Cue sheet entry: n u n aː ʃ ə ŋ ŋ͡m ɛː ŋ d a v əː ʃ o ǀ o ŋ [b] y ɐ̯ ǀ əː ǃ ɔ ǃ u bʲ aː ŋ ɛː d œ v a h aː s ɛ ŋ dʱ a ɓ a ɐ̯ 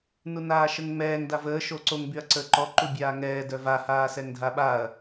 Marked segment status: correct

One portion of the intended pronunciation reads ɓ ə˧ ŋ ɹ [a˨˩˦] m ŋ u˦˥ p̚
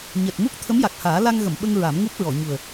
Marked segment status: correct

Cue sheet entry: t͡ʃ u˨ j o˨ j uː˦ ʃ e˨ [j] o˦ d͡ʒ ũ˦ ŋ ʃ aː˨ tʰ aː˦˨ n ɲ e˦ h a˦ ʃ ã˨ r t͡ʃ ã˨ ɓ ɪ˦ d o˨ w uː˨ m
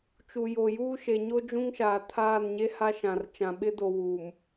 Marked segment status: incorrect: ɲ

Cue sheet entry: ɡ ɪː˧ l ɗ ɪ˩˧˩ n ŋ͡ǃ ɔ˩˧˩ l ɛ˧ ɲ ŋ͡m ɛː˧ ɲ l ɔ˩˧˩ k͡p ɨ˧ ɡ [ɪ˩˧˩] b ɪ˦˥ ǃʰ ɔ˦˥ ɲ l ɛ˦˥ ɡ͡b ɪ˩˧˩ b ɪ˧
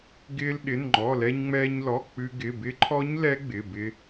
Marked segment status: correct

